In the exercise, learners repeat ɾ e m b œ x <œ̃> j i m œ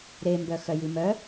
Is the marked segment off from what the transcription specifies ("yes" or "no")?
yes